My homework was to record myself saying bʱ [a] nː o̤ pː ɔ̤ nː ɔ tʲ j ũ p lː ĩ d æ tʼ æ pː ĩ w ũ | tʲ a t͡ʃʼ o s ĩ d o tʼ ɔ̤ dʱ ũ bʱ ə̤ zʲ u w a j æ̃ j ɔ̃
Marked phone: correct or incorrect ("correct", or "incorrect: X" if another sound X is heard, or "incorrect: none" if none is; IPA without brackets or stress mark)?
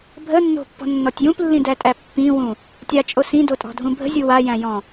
incorrect: ə